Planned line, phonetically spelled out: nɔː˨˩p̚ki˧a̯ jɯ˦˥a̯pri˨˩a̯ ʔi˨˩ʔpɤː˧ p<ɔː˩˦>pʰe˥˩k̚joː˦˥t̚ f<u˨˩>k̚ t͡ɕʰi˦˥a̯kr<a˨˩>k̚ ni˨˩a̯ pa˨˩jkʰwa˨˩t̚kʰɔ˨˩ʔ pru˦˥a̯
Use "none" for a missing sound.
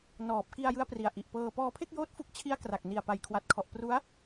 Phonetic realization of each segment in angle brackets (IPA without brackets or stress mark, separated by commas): ɔː˧, u˥˩, a˨˩